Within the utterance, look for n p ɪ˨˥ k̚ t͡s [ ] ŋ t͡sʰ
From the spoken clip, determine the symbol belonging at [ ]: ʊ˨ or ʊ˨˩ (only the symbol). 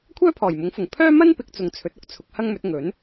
ʊ˨